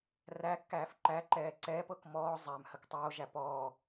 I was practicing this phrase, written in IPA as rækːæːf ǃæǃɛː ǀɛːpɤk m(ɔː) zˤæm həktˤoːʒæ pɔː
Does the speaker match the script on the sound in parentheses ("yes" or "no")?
yes